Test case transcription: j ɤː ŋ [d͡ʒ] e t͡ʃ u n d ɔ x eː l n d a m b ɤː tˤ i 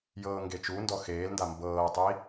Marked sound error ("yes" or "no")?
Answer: yes